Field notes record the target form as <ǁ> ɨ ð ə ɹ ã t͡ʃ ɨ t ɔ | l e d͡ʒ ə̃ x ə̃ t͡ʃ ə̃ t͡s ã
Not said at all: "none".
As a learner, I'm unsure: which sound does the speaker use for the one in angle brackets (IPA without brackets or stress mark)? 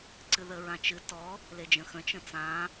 ǀ